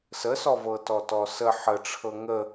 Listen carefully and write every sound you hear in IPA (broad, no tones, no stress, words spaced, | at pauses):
səsɔvɤ tɔtɔsə ħəʈ͡ʂʰɤ ŋə